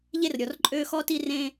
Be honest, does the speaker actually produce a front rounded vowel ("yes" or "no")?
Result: yes